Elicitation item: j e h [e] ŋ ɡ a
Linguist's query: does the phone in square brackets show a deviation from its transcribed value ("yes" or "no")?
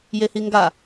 yes